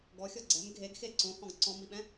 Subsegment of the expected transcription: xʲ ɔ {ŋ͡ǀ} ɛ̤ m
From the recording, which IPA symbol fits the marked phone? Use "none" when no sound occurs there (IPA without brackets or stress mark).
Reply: ɡ͡ǀ